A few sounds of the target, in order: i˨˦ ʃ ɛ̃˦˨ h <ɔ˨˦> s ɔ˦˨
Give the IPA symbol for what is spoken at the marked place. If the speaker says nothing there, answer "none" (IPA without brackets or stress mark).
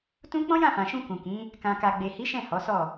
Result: ɔ˨˦